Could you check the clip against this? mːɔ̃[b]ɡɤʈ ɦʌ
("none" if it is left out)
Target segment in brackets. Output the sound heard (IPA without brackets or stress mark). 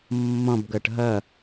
b